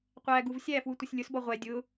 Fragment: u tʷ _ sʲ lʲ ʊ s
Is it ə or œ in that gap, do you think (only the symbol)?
ə